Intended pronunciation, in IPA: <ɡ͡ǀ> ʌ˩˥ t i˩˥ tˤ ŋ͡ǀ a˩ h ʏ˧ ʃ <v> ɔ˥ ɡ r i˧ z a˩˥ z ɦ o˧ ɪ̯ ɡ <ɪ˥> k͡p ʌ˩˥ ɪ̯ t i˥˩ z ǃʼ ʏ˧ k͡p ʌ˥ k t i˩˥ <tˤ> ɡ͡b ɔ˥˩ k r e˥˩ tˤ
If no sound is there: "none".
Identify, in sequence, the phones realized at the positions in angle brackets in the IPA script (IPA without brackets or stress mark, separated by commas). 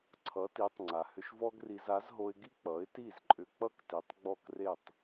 ǀʰ, v, i˥, tˤ